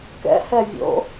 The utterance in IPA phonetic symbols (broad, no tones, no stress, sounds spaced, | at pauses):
k ɛ̰ h ɛ vʲ o̰